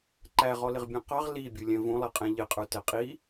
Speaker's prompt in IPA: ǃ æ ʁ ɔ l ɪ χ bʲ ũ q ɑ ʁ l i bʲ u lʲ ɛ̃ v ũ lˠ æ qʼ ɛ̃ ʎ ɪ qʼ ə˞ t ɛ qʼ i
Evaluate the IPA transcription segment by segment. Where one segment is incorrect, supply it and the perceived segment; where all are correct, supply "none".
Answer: χ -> ʁ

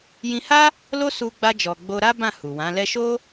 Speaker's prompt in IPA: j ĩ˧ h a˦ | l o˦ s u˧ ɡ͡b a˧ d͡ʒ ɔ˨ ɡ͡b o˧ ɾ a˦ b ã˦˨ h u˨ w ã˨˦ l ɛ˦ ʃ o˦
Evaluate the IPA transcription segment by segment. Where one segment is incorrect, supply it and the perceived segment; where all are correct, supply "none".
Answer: none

